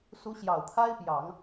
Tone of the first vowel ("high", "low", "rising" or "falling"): rising